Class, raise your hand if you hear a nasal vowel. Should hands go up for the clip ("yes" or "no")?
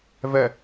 no